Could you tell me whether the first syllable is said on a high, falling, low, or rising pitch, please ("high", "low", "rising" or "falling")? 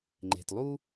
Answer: low